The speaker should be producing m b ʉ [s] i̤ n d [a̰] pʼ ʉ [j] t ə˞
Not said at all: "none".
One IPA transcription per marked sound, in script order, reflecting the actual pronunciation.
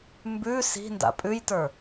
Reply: s, a̰, j

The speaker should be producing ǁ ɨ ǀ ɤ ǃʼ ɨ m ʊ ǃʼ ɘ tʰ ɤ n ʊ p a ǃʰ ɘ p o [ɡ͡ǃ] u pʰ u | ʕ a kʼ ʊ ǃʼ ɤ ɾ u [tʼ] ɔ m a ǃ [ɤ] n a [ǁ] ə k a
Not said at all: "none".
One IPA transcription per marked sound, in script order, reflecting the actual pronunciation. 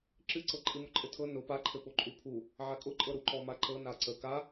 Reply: ǃʼ, ǃ, ɤ, ǀ

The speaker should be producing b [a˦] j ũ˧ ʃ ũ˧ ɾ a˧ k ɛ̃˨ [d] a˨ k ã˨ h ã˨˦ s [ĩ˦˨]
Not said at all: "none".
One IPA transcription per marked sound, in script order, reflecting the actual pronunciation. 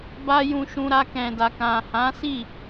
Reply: a˦, d, i˦˨

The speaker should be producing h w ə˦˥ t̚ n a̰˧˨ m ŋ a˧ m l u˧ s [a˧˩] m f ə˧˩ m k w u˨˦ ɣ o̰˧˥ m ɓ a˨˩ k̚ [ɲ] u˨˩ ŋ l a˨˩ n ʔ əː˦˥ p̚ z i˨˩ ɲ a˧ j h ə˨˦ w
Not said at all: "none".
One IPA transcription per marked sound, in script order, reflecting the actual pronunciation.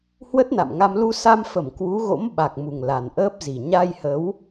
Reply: a˧, m

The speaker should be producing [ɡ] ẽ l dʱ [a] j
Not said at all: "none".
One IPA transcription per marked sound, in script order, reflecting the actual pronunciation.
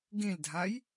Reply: ɡ, a

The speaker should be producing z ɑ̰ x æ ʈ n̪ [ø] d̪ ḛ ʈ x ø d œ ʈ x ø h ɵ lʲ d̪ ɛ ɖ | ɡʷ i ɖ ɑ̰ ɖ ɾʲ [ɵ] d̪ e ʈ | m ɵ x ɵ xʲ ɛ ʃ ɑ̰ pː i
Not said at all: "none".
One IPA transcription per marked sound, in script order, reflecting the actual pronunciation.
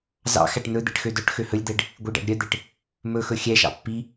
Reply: ɵ, œ

